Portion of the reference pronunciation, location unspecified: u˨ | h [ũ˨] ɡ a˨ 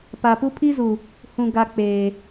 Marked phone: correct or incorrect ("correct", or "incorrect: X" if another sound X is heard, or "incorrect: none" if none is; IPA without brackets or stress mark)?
correct